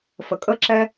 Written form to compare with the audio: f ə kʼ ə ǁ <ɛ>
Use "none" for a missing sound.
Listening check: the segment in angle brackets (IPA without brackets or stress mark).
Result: ɛ